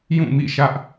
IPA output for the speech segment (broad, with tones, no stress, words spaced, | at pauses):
jũ˦˨mḭ˦˨ʃä˦ʔ